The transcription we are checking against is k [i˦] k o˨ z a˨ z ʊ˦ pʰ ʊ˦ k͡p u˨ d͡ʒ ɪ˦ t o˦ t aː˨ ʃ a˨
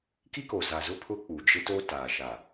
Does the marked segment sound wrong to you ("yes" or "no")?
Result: no